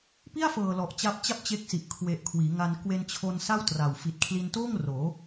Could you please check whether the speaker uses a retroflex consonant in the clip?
no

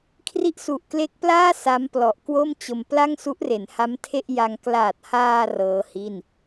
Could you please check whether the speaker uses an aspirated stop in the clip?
yes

